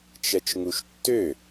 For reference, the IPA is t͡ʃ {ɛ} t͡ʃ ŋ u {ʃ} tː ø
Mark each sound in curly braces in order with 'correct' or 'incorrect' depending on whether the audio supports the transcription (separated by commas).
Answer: correct, correct